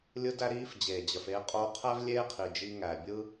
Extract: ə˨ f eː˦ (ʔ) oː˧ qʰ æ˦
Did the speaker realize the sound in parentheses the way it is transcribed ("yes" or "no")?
no